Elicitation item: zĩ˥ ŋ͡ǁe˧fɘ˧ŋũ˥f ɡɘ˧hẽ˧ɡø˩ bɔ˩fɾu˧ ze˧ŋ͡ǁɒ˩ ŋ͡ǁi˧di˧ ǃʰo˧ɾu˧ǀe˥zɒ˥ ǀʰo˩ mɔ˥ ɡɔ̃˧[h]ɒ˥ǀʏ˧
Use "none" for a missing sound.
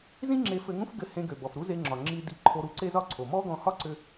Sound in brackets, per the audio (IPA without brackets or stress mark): h